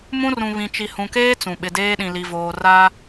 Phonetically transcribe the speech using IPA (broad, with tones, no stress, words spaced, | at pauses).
mũ˦rũ˨ βĩ˨t͡ʃi˨hũ˨keː˦ t͡sũ˨ ɓɪ˨deː˦ɗĩ˨ li˨voː˨ ra˦